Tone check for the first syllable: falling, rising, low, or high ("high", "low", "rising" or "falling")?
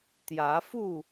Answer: rising